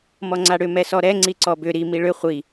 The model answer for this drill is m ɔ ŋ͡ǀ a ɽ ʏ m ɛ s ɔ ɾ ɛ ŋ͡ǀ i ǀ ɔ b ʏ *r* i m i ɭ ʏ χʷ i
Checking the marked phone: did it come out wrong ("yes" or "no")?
yes